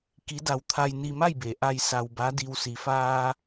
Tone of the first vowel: rising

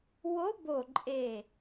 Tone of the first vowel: rising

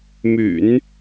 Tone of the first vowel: low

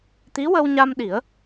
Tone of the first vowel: rising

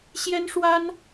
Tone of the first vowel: high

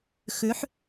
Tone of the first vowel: rising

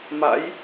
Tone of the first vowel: rising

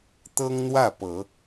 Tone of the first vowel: high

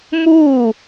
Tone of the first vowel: falling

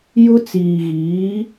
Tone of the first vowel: high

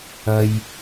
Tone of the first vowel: high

